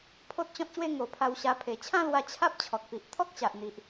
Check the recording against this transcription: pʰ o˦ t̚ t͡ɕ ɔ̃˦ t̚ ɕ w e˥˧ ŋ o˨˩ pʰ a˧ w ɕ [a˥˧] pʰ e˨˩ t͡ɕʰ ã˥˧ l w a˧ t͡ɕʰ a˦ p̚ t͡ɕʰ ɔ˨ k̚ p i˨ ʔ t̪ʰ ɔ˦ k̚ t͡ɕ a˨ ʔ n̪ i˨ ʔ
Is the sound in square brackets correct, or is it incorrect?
incorrect